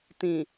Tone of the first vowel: low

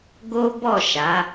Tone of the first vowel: high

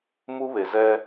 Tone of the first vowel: high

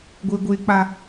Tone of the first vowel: high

